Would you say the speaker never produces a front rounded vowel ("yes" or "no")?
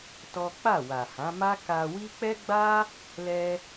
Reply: yes